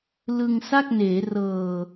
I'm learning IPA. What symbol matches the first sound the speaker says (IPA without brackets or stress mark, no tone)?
l